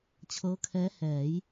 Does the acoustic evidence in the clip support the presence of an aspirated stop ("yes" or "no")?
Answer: yes